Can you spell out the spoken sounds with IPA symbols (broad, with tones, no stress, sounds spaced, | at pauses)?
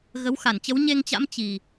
ɣ ə˨˦ w x a˧˩ n t͡ɕ ə˨˦ w ɲ e˧ ŋ t͡ɕ a̰˧˥ m t͡ɕ i˨˩